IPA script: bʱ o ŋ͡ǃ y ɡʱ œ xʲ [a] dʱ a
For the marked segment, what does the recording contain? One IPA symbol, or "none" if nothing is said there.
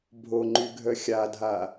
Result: a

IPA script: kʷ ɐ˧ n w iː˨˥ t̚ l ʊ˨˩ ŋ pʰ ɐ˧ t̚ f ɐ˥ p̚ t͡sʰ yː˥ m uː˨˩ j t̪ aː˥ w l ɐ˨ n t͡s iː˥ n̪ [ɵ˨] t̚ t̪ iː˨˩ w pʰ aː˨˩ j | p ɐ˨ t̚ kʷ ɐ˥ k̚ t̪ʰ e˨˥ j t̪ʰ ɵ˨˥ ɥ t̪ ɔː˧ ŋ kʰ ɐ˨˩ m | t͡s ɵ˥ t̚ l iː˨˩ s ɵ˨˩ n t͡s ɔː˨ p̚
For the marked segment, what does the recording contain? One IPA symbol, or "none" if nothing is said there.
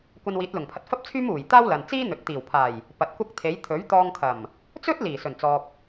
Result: ɵ˨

